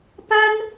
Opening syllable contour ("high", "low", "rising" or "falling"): high